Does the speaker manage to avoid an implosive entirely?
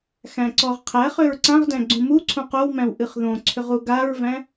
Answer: yes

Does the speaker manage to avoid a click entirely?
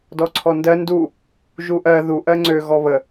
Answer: no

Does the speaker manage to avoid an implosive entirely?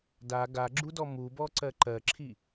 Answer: yes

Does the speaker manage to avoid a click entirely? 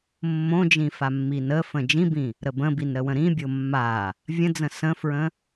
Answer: yes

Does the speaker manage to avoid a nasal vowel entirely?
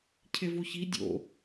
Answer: yes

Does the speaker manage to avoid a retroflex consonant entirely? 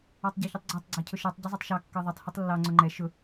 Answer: yes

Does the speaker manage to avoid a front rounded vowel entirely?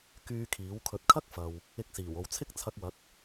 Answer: no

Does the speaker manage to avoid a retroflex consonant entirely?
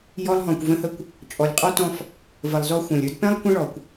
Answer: no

